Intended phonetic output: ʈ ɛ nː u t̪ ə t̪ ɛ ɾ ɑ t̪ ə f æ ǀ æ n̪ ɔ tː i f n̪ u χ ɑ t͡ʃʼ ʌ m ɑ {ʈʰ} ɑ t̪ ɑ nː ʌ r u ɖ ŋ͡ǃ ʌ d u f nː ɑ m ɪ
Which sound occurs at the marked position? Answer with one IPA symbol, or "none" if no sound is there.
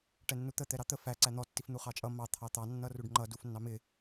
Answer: t̪ʰ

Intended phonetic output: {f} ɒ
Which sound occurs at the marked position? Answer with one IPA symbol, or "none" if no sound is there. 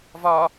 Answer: v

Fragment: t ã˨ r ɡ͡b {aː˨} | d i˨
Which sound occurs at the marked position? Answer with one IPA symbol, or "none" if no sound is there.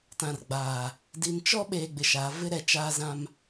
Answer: aː˨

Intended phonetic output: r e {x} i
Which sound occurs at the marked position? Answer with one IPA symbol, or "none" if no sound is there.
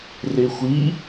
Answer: xʷ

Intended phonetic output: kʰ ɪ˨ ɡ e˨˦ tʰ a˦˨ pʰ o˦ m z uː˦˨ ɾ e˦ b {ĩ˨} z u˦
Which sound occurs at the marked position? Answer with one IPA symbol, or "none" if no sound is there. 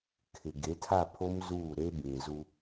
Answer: ĩ˨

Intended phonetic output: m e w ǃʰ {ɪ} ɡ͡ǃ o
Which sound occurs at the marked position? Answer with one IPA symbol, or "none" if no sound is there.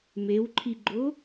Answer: i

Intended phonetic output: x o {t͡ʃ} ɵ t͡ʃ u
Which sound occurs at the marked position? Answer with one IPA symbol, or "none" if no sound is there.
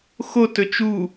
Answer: t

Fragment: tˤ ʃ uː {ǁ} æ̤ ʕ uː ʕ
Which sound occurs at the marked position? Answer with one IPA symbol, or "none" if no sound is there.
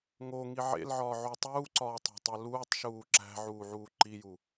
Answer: ǁ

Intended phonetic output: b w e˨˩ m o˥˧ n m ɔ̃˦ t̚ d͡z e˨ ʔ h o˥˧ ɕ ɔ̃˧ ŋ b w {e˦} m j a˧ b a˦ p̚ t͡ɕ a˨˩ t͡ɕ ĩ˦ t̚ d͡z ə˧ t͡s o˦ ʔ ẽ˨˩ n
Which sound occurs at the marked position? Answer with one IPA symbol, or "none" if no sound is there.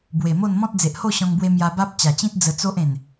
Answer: e˧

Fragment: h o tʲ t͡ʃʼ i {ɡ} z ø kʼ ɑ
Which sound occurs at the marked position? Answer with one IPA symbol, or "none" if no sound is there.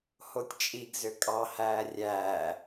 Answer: ɡ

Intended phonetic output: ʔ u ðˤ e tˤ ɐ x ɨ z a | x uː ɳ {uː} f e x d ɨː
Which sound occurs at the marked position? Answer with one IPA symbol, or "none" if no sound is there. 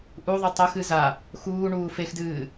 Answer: uː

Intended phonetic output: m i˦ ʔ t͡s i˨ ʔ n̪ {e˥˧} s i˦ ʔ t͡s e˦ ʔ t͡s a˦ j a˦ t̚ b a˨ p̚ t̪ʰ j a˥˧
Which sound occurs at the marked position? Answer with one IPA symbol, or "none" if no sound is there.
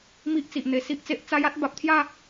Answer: e˨˩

